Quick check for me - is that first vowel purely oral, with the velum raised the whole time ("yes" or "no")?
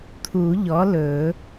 yes